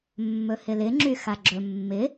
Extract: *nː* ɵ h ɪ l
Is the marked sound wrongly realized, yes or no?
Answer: yes